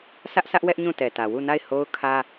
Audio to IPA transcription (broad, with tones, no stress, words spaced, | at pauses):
sä˦ʔsʰä˦ʔwɛ˦ʔ ɲũ˦˨tɛ˨tä˨ wu˦˨na˦˨ɪ̯ ho˦ʊ̯kʰä˦